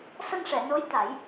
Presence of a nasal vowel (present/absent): absent